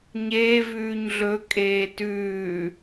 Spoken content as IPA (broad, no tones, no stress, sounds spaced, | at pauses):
ɲ eː v ʉː ɲ ɮ ɵ kʼ eː t ʉː